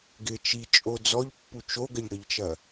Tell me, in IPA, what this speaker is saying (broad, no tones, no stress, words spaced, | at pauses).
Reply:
ɡɪ t͡ʃit͡ʃʼo d͡zɔʎpːu t͡ʃoɡəʎɽəʎt͡ʃɐ